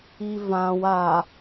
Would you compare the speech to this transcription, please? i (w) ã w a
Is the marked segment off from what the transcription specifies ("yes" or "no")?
yes